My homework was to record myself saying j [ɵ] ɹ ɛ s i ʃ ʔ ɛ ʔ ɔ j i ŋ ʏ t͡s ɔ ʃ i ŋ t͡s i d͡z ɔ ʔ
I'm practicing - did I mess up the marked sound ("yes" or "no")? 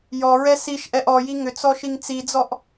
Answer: yes